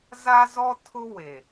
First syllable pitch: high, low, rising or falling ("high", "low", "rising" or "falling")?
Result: high